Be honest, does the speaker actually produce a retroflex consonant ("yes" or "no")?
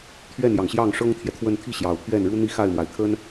yes